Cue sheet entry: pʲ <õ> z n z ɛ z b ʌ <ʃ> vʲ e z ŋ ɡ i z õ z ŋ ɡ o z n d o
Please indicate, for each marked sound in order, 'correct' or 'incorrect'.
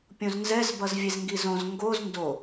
correct, incorrect: z

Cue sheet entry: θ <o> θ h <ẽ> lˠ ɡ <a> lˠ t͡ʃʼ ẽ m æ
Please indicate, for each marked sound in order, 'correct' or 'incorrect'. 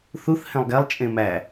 incorrect: u, correct, incorrect: æ

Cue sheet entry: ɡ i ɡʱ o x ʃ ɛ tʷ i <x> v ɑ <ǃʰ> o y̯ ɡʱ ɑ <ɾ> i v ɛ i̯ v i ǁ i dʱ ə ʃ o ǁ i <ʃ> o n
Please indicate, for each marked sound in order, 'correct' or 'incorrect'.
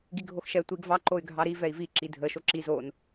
incorrect: ɡ, incorrect: ǃ, correct, incorrect: z

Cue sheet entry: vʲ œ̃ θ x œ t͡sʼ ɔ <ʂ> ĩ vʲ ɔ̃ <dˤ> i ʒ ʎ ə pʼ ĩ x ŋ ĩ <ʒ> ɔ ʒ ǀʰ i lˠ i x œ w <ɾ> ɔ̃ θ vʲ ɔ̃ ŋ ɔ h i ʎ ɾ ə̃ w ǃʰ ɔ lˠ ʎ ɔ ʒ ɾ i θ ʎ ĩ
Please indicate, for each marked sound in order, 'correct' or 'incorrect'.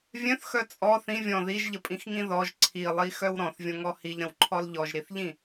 incorrect: θ, incorrect: ð, incorrect: ð, correct

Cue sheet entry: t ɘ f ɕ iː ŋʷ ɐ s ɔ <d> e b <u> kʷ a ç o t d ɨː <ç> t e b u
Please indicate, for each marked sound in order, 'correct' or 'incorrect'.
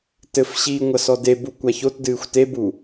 correct, correct, incorrect: xʷ

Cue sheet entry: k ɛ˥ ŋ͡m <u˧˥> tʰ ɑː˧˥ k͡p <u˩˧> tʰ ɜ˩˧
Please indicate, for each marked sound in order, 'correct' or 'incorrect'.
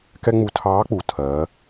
incorrect: u˧, correct

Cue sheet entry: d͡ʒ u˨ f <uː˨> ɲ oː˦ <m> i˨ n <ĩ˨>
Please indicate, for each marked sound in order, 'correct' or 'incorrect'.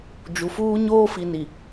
incorrect: uː˦, incorrect: f, incorrect: i˨

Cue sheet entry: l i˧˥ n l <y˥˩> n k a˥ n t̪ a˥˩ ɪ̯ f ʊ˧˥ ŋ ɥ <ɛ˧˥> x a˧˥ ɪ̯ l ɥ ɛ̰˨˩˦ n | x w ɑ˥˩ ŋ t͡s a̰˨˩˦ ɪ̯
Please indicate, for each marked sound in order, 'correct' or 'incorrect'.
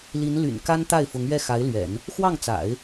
incorrect: y̰˨˩, incorrect: ɛ˥˩

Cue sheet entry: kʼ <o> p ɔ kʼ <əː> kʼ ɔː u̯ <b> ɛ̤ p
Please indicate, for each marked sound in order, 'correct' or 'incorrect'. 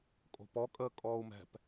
incorrect: o̤, correct, incorrect: m

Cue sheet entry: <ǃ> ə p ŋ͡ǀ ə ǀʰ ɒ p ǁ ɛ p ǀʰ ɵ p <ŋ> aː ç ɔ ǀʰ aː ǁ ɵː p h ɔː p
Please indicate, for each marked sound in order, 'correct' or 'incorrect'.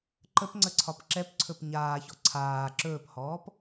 correct, incorrect: ɲ

